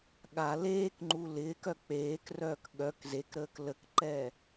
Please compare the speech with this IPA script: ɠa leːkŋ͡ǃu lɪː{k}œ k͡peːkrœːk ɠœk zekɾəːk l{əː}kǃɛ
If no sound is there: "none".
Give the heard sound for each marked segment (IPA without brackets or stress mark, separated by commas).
k, ə